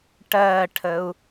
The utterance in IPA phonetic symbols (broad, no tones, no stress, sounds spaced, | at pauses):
ʈ ɜ ʈʰ ə u̯